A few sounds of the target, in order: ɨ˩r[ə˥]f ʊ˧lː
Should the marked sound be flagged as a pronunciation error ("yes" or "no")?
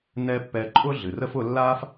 no